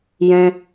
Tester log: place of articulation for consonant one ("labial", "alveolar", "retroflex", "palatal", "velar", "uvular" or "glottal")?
palatal